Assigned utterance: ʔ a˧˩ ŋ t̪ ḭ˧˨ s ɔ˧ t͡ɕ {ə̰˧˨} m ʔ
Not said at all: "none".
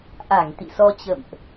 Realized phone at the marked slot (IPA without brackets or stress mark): ə̰˧˨